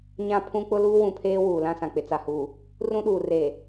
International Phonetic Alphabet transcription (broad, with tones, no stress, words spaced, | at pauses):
ɲã˦pʰũ˦ k͡pʊ˦luː˦wũ˨pʰeː˦ wuː˨lã˦sã˨ k͡pɪ˨t͡sa˨huː˨ | rũ˦ɗuː˨reː˨